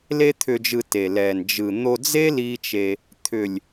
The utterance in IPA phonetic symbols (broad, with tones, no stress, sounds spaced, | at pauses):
l e˦ t̪ʰ ʏ˧ d͡ʒ ɯ˧ t e˨ l ɛ˨ n d͡ʒ ɯ˨ n̪ o˧ d͡z e˦ l i˦ t͡ʃ e˧ | t̪ʰ ʏ˨ lʲ